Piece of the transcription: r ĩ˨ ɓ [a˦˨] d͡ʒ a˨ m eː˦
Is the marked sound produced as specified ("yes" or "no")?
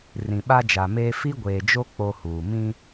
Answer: no